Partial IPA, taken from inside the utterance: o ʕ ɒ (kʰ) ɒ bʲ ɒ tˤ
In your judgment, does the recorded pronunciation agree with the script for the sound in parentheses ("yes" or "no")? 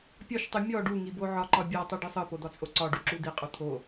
no